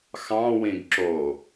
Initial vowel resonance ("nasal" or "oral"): nasal